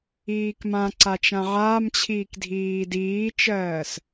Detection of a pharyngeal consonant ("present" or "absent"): present